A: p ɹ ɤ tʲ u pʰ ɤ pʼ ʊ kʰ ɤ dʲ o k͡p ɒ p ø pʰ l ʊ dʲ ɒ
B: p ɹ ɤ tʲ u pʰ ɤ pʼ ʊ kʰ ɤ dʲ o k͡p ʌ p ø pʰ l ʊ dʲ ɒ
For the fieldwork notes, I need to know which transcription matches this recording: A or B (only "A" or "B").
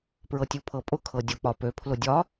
A